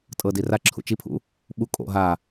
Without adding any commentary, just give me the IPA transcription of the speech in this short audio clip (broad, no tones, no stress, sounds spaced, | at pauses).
tʼ ɤ d i r a ǁʰ ṵ t͡ʃ i pʰ ṵ | ɓ u kʼ o̰ ɦ a